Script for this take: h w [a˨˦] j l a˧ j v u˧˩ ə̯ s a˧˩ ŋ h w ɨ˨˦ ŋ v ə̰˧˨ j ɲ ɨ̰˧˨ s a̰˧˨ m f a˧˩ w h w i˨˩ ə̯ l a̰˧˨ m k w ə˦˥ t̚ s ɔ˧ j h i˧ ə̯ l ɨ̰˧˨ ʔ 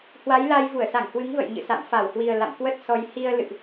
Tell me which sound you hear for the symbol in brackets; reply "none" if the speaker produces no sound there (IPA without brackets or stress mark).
a˨˦